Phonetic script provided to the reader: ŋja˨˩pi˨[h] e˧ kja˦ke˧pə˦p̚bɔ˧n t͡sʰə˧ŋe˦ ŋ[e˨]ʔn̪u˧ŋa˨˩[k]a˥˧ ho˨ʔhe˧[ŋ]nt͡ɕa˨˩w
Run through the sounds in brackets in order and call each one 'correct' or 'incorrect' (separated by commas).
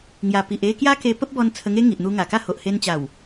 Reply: incorrect, incorrect, correct, incorrect